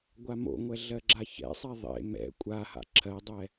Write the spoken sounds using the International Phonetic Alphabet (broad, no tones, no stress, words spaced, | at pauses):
ɡʷamo̰ŋʷɛ ɮɜɡ͡ǁaçɛ̰sˤɛ ðˤḛ mɛ̰ kʷʼaha̰ ǁʰɜdˤɛ